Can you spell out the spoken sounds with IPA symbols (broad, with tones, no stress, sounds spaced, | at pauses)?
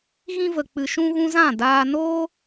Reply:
ɣ ĩ˦ v ə˧ k͡p ɨ˧ ʃ ũ˦ ɣ ũ˦ z ã˦˨ d aː˧ n oː˦